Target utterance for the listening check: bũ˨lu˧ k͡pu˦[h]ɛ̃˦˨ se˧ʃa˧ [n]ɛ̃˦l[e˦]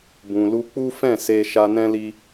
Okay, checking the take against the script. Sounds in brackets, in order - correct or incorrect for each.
incorrect, correct, incorrect

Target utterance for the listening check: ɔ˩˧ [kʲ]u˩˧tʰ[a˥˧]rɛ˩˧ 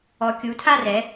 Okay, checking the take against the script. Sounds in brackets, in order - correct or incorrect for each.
correct, correct

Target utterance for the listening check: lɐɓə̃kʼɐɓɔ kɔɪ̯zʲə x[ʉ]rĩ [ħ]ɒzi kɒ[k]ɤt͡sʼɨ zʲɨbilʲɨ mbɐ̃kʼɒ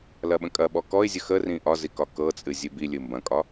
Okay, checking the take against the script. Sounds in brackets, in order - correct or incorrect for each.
incorrect, incorrect, correct

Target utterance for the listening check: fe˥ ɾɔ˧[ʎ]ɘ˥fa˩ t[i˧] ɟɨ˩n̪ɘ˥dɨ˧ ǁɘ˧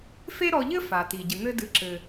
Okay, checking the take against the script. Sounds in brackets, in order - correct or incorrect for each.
correct, incorrect

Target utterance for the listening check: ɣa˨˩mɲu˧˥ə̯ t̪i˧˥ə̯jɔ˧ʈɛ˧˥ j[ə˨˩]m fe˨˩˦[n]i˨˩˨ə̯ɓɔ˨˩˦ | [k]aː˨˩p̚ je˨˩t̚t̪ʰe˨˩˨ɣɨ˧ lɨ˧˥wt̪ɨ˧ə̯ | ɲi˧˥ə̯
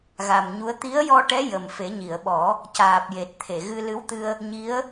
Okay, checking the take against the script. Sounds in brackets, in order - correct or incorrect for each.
correct, incorrect, incorrect

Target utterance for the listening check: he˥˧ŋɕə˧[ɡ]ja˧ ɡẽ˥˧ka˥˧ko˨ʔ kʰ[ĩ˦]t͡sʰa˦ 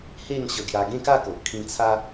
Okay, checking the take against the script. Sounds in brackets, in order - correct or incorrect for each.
correct, incorrect

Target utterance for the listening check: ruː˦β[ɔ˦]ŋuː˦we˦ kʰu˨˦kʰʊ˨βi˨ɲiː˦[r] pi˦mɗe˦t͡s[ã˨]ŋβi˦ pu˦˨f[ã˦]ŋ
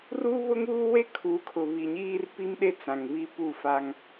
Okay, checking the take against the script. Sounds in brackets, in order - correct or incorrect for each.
incorrect, correct, correct, incorrect

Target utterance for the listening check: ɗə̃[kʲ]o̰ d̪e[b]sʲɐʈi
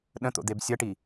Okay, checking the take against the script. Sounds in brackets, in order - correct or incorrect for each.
incorrect, correct

